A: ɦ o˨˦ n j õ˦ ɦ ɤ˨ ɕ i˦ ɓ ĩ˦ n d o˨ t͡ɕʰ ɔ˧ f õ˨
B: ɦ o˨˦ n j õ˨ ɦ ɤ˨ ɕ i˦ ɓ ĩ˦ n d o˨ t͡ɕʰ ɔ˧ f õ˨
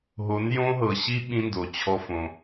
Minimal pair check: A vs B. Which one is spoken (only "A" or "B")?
A